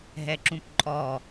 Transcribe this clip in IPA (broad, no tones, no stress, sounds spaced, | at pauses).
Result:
ɦ ɛ ǁ ũ p ǃʼ ɔ